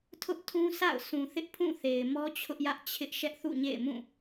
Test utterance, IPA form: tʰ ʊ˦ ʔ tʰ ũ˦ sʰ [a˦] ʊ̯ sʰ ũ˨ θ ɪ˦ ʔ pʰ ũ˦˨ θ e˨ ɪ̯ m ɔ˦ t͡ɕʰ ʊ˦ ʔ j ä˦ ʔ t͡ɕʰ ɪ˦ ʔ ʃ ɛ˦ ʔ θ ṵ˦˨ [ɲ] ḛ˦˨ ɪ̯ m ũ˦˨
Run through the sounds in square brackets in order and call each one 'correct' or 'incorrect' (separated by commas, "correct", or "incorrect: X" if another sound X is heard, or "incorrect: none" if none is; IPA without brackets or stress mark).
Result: incorrect: a̰˦˨, correct